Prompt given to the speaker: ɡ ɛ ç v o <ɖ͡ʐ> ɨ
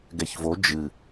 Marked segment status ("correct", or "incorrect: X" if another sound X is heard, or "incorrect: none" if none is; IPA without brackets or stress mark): incorrect: d͡ʒ